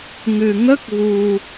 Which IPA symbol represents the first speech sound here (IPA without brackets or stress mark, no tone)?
ŋ